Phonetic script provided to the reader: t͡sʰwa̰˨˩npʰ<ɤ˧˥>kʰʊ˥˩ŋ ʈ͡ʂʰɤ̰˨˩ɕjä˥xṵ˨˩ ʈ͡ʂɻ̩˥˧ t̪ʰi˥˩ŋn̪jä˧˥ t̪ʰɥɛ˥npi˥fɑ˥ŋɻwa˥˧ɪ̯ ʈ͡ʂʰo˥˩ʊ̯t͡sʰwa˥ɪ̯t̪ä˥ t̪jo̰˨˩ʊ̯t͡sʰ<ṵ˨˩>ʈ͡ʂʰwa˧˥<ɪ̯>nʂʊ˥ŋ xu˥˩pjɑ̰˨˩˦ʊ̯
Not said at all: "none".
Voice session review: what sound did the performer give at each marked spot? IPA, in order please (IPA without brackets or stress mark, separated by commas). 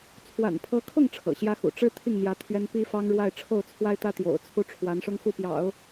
ɤ˧˥, u˥˩, none